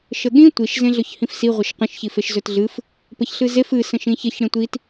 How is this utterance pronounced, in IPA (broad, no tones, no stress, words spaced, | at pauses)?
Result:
ʃəɠĩ tʷiʃ zẽɮɵçhĩfsi ʁʷəʃqə̃ʃ çifeʃzɵtɮɨf | pəçɬɨzef ɨ sə̃ʃĩçəç ɽẽtʷit